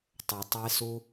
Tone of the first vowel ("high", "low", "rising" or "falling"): low